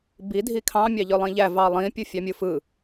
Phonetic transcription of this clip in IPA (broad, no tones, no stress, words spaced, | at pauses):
bi dʱikʰɑ̃ mʲɑʎølˠĩʎæ vɑlˠĩ pʲɯfʲɑmʲɯfɯ